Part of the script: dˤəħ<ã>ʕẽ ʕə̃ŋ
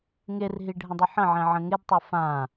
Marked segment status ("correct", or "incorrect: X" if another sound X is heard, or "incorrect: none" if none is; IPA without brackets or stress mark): incorrect: ə̃